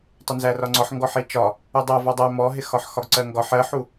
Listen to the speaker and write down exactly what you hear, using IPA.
tˤ ɪ n z æ r ɒ ŋ͡ǀ ɒ ħ ŋ ɡ ɔ ħ i t͡ʃ ɒ | u dˤ ʌ v ɔ dˤ æ m ɔ ɦ ɪ x ɒ ħ x ɒ ɡ ǀ ɜ ŋ ɡ ɒ ħ ɜ ħ u

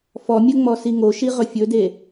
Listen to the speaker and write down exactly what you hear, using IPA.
f ɔ mʲ ə ŋ͡m ɔ s i ŋ o ʃ i ʁ ɵ fʲ ɵ d e

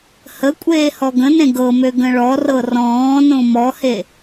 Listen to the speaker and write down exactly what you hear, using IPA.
h ə kʷʼ eː h ɔ ɡ ə̃ n ẽ ɡ ɤ m ø ɡ ə̃ ɭ ɔ r ɤ r ɔ̃ː n õ m ɔ h e

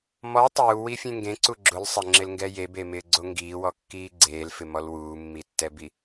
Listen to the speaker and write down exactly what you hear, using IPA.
m ɔ tˤ uː w i fʲ ẽ ŋ ɡ ẽ ǀ u ɡ͡ǁ ʊ l sˤ ɪ ŋ͡ǁ ɪ l ŋ ɡ ɛ j e b e m ɪː ɡ͡ǀ o ŋ ɡ iː w ɔ kː iː ɡ͡ǀ eː l f ɪ m ɔ l w uː mː i tː ɛ b i

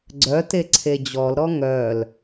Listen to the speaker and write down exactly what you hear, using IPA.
ɡ͡ǀ œ t e ǀʰ e d͡ʑ ɔ l ɾ ɔ ŋ œ l

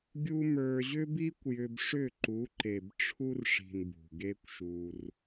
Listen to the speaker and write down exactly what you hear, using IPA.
ɡʲ u˦ m ə˞˧ ʑ ʏ˦ b i˦ kʷ j ʏ˧ b ʂ ʏ˦˨ ǃ u˨˦ ǃ e˨ b ʈ͡ʂʰ u˦ r ʂ i̤˨ n b ṳ˨ ɡ e˦ kʷ ʃ u˧ r

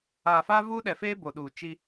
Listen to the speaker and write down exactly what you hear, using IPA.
aː˨ f aː˦ v uː˦ ɗ ɛ˨ f eː˦ b o˨ ɗ uː˨ t͡ʃ i˦

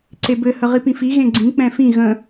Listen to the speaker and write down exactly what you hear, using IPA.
ǀ e b ɘ h ə ʁ i p ĩ f i ɣ ẽ ɡ͡ǀ ĩ k͡p ɛ̃ f ĩ ɣ ə̃

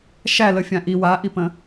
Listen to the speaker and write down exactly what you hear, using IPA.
ʃ æ l ə fʲ ã ʔ i w a ʔ i p ə̃

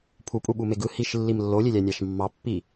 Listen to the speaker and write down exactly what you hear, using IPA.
pʰ u pʼ u ɓ u m e ɡ ɯ h i ʃ lː i m lː o lʲ e lʲ æ nʲ ɑ ʃ mː ɑ pː i

